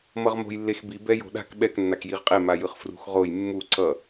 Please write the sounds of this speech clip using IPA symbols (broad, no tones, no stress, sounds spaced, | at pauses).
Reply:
m ʌ ʁ m o̤ j lː e x b i b ɛ j o̤ ɗ a̤ k ɓ ɛ k nː a k j i ʁ qʼ e m a j ɯ χ f r ṳ x ʁ o j mː u ǀ ʌ